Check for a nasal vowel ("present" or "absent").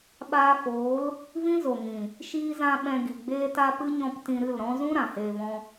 present